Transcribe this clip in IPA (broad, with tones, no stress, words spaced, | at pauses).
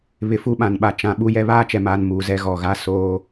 βɪ˨fu˦ɓã˨nɓa˨ t͡ʃã˨ ɓu˦jɛ˦ βaː˦t͡ʃɛ˨maː˨n muː˨zɛ˦ ɣɔ˨ɣa˦soː˦